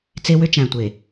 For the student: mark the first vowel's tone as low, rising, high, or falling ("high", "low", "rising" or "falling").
high